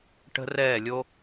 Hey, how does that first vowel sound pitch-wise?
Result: high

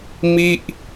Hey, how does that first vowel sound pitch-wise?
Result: falling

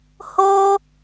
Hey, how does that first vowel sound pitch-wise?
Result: high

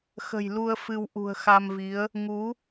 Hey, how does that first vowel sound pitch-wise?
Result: low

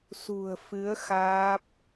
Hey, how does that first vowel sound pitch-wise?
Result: low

